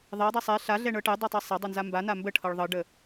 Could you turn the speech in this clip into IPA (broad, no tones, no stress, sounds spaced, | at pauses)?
ðˤ ɛ dˤ ɛ sˤ ɛ ɬ a ɮ ɛ ɳ ɤ ʈ ɛ dˤ ɛ tˤ ɛ sˤ a dˤ ɤ n z a m b a n a m b ə ʈʰ ɤ ɭ ðˤ ɤ ɖ ə